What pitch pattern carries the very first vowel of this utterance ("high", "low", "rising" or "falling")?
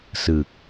low